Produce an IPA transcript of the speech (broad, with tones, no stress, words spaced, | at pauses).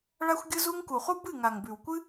ɭa˦xʷɡʲɯ˦zu˦ŋ ku˨χu˦ bɨ˦˨ŋa˨ŋbʉ˨wkʷɨ˦